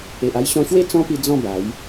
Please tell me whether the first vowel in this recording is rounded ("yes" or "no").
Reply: no